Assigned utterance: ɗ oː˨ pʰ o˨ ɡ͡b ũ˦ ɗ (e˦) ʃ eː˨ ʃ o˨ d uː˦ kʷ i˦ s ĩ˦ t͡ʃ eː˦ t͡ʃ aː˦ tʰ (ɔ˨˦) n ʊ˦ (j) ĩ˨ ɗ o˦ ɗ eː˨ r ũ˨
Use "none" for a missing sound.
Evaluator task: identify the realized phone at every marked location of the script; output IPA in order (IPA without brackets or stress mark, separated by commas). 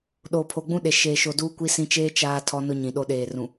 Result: e˨, ɔ˦, ɲ